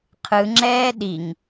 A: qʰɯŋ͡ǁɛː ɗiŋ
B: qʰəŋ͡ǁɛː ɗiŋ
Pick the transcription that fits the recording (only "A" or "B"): A